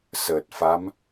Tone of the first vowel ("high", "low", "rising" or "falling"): low